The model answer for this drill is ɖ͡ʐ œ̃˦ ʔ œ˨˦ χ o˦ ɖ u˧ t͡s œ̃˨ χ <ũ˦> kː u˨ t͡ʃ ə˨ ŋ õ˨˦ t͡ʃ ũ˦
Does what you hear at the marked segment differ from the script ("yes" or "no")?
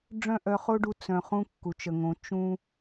no